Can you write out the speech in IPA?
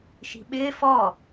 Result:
ʃ i̤ ɓ ɪː f ɔ

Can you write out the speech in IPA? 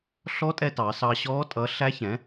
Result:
ɬ ɔ˦˥ tʼ ɛ˧ t ɑ˩˧ s ɑ˧ ɕ ɔː˦˥ tʼ ʌ˨˥ ɬ æ˦˥ ç ɛ̃˨˥

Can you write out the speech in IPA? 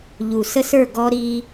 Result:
ʎ u˨ s ə˦ s ə˞˦˨ ɡ ɔ˦ ɾ i˦

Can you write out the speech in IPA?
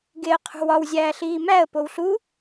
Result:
ɡ e ə̯ qʰ ṳ w ɒ w zʲ æː ɬ iː m æ ə̯ p o w ɬ u

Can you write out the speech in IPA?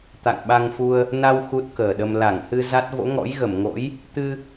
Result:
t̪ a̰˧˨ ŋ ɓ a˧ ŋ f u˧ ə̯ | n a˧ w x u˦˥ t̚ k əː˨˩ ɗ ə˧ m l a˧˩ ŋ h ɨ˧ z a˦˥ t̚ v o̰˧˥ ŋ ɔ̰˧˥ j ɣ ə˧˩ m ŋ o̰˧˥ j | t̪ ɨ˧

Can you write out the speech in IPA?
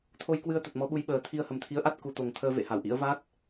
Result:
t̪ʰ o˧ j k w ɨ˧ ə̯ t̪ ə˨˩ t̚ m ɔ˨˦ ɓ u˨˦ j ɓ əː˨˩ t̪ʰ i˧ ə̯ h ə˨˩ m t̪ʰ i˨˦ ə̯ ʔ a˦˥ t̚ k u˨˩ t̪ o˨˩ ŋ t̪ʰ əː˧ v ḛ˧˨ h a˧˩ w ʔ ḭ˧˥ ə̯ v a˦˥ t̚

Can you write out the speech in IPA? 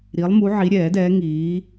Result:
ɾ i˨˦ lˠ m u˨˦ ʕ i˨˦ ɾʲ ɛː˨˩˦ d ɛː˨˦ ŋ iː˨˦

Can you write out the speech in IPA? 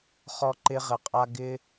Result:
χ ɔ˧ ǃ ɪ˧ ʁ ɘ˨ qʼ a˧ ɡ ɪ˧

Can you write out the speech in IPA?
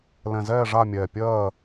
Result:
l ɛ̃˨˩ z ɛː˦˨ ʐ a˦˨ mʲ ɛː˨˩ pʲ ɜː˦˨

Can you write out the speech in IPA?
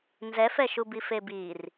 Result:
n z ɛ f ɛ ʃ u b i f e b i r

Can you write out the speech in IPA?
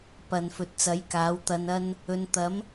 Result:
p ɐ˨ n f ɵ˨ t̚ t͡s ɐ˨˥ j k aː˨˥ w t̪ ɐ˧ n ɐ˥ n | ɵ˨˧ n t̪ ɐ˨˥ m

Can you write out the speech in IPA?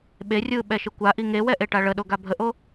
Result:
ɓ e rʲ ɯː ɓ ɛ ʃ ɯ kʷ a ʔ i ŋ e w ɛ ʔ e ʈ a ɭ ə ɗ o ɡ a bʱ ə ʔ o

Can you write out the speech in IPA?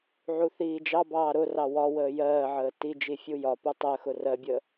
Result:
ʕ u θ iː d͡ʒ ɑ b ɑː ɾ ʊ r ɑ w ɒ w əː j ɜː ʕ əː t i d͡ʒ i fʲ u j ɒ p u tˤ ɜ x ʊ r ɜ bʲ əː

